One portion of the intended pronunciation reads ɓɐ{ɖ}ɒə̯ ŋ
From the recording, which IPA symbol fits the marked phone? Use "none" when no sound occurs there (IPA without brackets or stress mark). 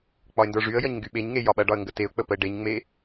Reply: ɖ